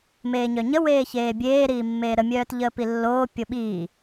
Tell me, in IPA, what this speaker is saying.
m eː ɲ œ ɲ ə w eː ç eː bʲ eː ɾ iː mː eː ɾ ə mʲ œː t ʎ əː p i lː oː pʲ o ɓ iː

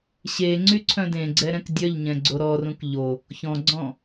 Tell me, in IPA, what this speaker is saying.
ɕ e ŋ͡ǀ y ǀʰ œ̃ d ẽ ɡ͡ǀ ɛ ɾ ɛ̃ k dʲ œ ʎ ɲ ɛ̃ ɡ͡ǀ o ɾ ɔ r ũ k ʎ o | ç ɔ̃ ɡ͡ǀ ɔ̃

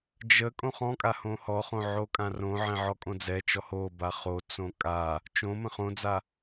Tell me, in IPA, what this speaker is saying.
d͡ʒ ə kʼ õ χ ɔ̃ kʼ a h õ h ɔ χ õ ʕ o kʼ ã r õ ʕ ɛ̃ ʕ ɔ kʼ õ d͡z ɛ t͡ʃ ɔ h o b a χ o t͡s õ kʼ a | t͡ʃ õ m ə̃ χ õ d͡z a

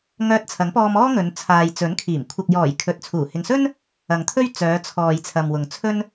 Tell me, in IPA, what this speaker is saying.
ŋ œː˧ t̚ t͡sʰ ɐ˨˥ ŋ p ɔː˧ m ɔː˥ ŋ ɵ˨˧ n t͡sʰ aː˨ j t͡s ɵ˨˥ n kʰ iː˨˩ m kʷʰ ɐ˨ k̚ j ɔː˨˩ j kʰ ɵ˨ t̚ t͡sʰ uː˨˩ h ɪ˨ ŋ s ɵ˥ n | ɐ˨ ŋ t̪ʰ ɵ˥ ɥ t͡s œː˨˧ t͡sʰ ɔː˨ j t͡sʰ ɐ˨ m w ʊ˨ ŋ t͡sʰ ɵ˧ n

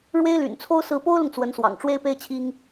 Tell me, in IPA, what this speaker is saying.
ɻ w e˥ ɪ̯ l y̰˨˩ n t͡sʰ o˥ ʊ̯ s ɹ̩˧˥ p o˥ ʊ̯ l ʊ˨ ŋ t͡s w ə˧˥ n s w ɑ̰˨˩ ŋ ʈ͡ʂ w e˥ ɪ̯ p e˥ ɪ̯ t͡ɕʰ i˥ ŋ

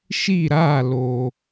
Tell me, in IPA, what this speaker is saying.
ʃ i˦˨ ɾ aː˦˨ l oː˨

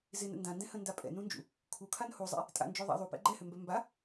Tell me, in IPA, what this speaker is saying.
z ɪ n ə̰ n d ã n d ɛ̃ h ə̃ n d a pʼ ɛ̰ n ũ n d͡ʒ ṵ | kʰ u kʰ a n h u zˤ ɛ̰ | tʼ a̰ n d͡ʒ ø ðˤ a̰ ðˤ u p ɛ̰ ɡ͡ǃ ɛ h ø m b ɛ m b a

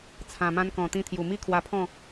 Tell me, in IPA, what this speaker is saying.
t͡sʰ ã˨˩ m ã˧ n k ɔ̃˨˩ t̪ ĩ˧ t̪ʰ j u˨˩ m i˥˧ kʰ w a˧ pʰ ɔ̃˥˧

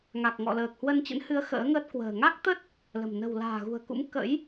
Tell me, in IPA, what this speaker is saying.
ŋ a˨˩ k̚ ŋ ɔ̰˧˨ l əː˨˩ k̚ h w ə˧ n t͡ɕ ə̰˧˥ n h ɨ˨˦ ə̯ x ə̰ː˧˥ ŋ əː˦˥ t̚ k w ə̤ː˨˩ ŋ a˦˥ k̚ t̪ ə˦˥ t̚ | l ə̤˨˩ m n ə̤˨˩ w l a̤ː˨˩ ɣ ṳ˨˩ ə̯ k ṵ˧˥ m k ə̰˧˥ j

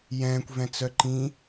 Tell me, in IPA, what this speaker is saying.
j ɛ̃ː kʷ v ɛ̃ t͡s œ ǃ ĩ

